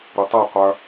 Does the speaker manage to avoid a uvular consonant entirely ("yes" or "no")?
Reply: no